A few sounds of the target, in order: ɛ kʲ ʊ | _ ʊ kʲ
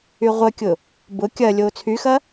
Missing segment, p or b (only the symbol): b